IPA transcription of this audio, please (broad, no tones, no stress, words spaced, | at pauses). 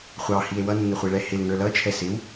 χʷɑhie̯ wʌnːəχʷiɭɛ hɪlŋə˞ lʌt͡ʃʰɛ sɪw